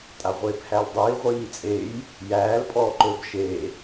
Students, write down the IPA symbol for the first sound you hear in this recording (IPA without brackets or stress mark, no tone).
tʼ